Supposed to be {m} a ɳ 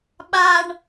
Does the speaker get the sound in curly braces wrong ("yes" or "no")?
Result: yes